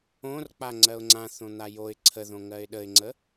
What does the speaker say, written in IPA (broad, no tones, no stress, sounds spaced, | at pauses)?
õ r k͡p a ŋ͡ǀ ɜ ʊ̯ ŋ͡ǀ ã θ õ n̪ a j o ɪ̯ ǀʰ ə ð õ ŋ ɜ ɪ̯ ɗ ə ɪ̯ ŋ͡ǀ ə